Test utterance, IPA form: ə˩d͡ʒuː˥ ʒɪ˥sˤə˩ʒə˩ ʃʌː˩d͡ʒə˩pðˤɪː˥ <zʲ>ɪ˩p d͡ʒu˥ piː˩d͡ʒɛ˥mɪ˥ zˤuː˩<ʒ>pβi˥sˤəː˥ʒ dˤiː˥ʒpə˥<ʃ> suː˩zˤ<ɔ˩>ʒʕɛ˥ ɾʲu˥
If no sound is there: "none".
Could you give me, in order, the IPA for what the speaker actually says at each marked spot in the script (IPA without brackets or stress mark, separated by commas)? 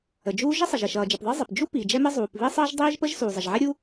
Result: zˤ, none, ʒ, ə˩